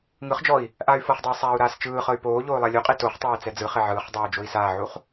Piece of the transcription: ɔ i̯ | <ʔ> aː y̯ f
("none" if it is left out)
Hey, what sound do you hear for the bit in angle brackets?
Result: ʔ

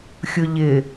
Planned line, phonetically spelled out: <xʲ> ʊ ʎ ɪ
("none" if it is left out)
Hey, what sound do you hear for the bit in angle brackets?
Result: xʲ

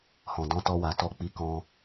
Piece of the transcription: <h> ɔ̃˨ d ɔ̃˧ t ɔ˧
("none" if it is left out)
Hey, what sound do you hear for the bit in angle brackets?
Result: h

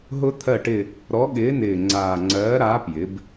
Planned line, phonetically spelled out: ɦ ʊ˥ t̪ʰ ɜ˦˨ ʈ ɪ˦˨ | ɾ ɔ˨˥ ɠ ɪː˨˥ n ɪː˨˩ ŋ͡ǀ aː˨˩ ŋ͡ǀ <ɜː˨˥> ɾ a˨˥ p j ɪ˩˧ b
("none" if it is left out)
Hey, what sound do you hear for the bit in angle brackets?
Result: ɜː˨˥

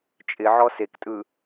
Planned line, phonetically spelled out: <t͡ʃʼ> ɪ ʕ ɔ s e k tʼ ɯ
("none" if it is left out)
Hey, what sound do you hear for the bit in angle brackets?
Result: t͡ʃʼ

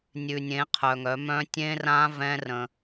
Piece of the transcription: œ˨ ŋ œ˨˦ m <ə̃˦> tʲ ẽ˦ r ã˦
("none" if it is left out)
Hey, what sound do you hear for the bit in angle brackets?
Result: œ̃˦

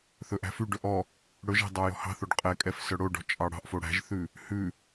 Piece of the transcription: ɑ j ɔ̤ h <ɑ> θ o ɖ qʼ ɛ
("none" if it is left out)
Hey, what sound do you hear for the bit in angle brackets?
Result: ɑ̤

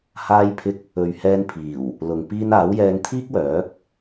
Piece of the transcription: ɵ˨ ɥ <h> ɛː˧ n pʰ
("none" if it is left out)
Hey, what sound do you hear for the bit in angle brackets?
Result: h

